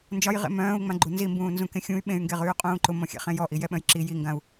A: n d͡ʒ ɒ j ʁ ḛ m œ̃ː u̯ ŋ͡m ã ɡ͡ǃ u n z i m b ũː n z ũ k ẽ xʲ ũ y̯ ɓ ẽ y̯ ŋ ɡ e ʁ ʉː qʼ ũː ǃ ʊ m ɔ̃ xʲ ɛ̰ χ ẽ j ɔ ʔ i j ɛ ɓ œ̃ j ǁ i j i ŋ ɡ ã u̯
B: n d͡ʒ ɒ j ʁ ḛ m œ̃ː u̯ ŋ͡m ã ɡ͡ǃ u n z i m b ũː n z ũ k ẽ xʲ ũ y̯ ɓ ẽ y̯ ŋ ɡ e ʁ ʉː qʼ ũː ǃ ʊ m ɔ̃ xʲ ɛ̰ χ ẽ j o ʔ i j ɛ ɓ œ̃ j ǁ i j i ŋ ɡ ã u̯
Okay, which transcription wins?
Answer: A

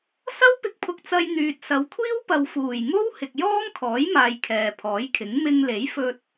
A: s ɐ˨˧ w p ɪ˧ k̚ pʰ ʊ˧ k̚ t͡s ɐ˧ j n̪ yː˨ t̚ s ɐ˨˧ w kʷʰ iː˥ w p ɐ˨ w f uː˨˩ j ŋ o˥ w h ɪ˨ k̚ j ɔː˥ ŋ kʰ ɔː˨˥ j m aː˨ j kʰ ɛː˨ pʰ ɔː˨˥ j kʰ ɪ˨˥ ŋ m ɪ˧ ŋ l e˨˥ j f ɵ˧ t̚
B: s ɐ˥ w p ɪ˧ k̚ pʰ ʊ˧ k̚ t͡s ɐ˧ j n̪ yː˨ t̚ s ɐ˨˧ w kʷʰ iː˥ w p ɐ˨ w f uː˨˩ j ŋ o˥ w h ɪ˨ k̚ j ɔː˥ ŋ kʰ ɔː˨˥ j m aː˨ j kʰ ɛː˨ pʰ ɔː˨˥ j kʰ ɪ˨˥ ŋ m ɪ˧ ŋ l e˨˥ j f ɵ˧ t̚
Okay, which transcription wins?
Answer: B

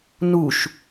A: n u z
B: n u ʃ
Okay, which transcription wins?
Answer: B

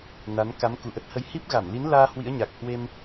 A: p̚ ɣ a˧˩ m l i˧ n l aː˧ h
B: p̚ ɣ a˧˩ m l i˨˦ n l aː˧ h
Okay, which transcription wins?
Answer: B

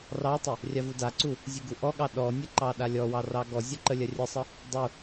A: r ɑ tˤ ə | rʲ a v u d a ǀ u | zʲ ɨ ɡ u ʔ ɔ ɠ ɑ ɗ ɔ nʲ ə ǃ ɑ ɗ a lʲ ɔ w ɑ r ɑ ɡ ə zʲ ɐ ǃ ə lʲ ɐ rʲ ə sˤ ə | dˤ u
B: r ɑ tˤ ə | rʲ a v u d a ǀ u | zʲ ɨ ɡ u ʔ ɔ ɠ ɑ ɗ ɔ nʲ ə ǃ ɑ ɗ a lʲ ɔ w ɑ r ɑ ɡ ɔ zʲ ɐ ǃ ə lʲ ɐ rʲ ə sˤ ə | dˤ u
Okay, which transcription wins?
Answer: B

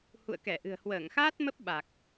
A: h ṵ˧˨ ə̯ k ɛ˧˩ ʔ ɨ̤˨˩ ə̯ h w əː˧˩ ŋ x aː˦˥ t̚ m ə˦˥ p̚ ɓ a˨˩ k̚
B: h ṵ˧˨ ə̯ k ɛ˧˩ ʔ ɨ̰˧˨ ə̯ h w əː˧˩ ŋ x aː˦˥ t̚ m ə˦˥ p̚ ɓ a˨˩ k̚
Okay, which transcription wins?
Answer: A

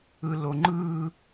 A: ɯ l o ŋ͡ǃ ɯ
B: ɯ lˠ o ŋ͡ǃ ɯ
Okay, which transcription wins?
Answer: A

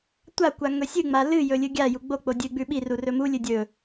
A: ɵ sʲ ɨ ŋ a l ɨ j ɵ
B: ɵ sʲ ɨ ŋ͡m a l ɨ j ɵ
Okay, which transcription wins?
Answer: B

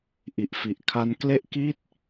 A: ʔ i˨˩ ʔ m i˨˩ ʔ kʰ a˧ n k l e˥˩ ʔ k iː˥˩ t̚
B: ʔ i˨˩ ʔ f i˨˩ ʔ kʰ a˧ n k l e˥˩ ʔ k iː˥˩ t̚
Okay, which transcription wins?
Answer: B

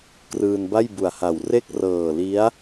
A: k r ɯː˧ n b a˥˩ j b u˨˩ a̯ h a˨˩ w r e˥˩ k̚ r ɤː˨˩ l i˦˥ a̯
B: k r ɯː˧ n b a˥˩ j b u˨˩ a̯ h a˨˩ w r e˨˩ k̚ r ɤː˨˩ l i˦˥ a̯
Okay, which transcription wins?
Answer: A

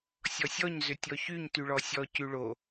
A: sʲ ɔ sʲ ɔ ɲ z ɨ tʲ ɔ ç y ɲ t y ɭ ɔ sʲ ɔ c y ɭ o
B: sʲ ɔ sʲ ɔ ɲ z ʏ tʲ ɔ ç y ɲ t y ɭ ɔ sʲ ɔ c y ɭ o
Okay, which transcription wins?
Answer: B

